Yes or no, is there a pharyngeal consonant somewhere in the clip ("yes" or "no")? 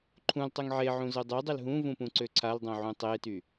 yes